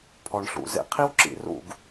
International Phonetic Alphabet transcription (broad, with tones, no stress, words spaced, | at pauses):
pʰɔ˨ɳɬṵ˨ zḛ˧qʰi˦w ǁḭ˨rṵ˦˨ɡ